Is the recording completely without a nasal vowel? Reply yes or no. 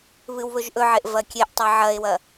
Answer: yes